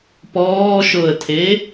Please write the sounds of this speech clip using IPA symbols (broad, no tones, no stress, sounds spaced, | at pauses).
p ɔː ʃ o ə̯ tʰ e